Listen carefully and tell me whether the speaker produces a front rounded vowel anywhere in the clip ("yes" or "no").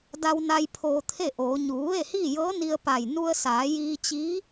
no